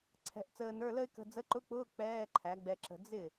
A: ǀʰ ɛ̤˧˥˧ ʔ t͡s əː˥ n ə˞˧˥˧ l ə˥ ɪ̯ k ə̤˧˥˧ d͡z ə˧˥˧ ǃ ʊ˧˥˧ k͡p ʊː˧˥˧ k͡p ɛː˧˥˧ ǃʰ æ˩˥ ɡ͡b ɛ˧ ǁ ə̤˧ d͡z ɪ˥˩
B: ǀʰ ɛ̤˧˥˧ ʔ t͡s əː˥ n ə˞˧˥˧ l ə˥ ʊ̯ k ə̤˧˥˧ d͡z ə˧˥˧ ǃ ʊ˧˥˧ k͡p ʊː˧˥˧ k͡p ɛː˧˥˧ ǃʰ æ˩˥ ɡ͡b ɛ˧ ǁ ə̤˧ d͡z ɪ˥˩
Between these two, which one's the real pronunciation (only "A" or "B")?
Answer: A